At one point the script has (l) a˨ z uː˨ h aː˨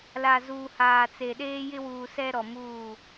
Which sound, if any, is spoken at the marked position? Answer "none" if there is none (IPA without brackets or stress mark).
l